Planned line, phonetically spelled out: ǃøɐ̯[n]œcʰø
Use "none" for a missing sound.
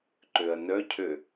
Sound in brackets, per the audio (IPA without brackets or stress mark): n